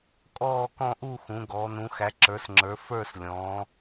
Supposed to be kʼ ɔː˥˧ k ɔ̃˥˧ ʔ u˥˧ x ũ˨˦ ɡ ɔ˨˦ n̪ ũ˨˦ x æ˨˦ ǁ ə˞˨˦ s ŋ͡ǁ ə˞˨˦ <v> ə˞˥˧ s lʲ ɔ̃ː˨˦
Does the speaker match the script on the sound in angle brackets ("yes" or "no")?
no